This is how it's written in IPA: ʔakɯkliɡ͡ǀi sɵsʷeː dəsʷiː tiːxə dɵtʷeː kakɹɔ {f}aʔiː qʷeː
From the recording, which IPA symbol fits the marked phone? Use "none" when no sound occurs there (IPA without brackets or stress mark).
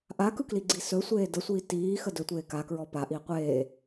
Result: p